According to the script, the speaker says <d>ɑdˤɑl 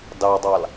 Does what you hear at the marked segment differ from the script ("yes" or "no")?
no